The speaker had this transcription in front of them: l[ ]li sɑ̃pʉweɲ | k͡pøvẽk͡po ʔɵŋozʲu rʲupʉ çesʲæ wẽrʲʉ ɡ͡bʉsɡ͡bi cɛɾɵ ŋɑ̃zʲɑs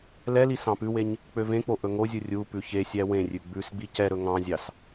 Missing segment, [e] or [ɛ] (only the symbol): ɛ